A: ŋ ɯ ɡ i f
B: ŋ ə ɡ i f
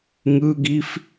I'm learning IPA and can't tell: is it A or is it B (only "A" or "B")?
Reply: A